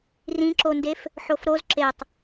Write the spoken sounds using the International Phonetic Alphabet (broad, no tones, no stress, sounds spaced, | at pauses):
r ĩ ǁ o n d e f | ħ o f ɾ o z ǁ e tˤ